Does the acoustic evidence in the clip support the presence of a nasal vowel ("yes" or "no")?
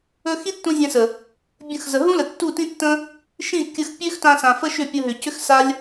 yes